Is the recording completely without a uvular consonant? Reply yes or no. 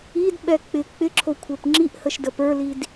yes